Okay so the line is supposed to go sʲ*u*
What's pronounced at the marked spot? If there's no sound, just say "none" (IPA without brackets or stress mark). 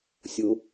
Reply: ʊ